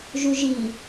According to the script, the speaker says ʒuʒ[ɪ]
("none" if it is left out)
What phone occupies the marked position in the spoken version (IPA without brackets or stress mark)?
i